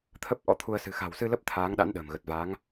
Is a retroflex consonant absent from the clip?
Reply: yes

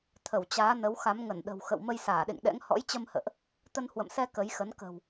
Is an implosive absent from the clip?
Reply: no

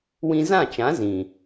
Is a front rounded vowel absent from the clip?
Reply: yes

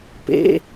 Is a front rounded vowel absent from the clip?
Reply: yes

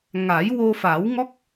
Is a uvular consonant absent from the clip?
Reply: yes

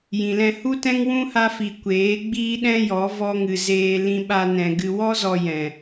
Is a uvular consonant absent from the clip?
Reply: yes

